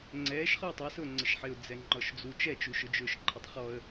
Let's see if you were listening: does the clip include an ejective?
no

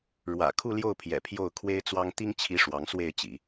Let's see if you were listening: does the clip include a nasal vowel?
no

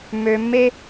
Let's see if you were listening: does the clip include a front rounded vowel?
yes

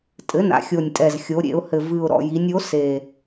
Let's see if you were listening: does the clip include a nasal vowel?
no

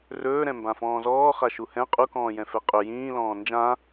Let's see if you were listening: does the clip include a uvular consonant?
yes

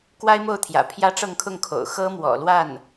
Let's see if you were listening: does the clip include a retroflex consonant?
yes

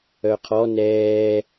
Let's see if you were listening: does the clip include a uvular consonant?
yes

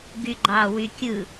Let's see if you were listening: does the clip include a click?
yes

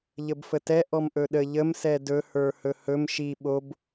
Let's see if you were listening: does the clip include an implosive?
yes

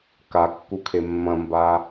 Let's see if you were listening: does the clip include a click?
no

